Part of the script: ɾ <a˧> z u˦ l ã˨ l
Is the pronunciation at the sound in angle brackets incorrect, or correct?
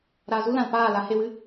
incorrect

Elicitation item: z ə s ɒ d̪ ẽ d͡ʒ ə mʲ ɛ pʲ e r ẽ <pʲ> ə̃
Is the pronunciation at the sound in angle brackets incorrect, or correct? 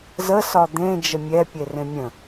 incorrect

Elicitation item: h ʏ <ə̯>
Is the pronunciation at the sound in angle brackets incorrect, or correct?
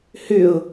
incorrect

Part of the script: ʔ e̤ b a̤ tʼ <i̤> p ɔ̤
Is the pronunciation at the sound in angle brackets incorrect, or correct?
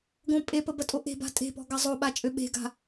incorrect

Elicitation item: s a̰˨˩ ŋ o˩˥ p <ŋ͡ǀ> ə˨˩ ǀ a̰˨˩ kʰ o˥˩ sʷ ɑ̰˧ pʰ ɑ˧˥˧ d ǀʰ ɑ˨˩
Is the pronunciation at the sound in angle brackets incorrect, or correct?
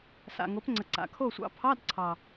correct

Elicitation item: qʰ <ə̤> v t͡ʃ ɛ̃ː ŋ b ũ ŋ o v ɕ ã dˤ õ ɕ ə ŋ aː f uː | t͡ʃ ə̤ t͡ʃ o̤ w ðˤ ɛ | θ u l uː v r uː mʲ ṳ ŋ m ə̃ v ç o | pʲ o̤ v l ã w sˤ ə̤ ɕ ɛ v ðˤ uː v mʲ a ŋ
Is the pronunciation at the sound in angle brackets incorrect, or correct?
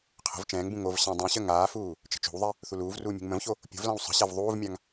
correct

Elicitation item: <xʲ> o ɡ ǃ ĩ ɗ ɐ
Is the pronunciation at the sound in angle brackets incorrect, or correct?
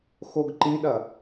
incorrect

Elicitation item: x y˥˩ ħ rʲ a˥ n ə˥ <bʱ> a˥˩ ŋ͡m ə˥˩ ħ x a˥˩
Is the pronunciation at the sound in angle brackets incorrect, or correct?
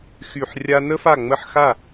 incorrect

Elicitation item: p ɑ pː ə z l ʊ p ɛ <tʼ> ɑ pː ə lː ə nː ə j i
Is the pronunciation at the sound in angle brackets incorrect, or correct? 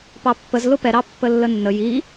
incorrect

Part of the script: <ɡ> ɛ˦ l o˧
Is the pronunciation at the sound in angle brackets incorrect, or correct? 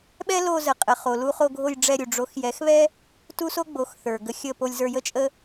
incorrect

